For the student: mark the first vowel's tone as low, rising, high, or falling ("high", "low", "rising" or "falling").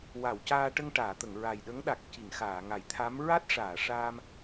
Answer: low